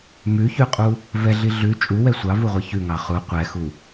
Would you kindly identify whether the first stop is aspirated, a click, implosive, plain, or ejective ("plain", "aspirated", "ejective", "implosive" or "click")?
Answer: ejective